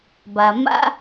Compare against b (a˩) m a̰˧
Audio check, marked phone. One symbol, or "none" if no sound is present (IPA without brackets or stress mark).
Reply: a˩